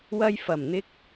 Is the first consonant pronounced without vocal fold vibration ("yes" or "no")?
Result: no